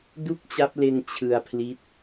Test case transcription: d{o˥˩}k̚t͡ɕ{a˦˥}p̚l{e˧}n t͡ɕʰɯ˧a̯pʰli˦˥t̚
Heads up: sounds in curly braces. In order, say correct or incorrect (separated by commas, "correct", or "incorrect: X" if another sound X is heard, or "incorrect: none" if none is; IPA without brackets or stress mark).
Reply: incorrect: u˥˩, correct, correct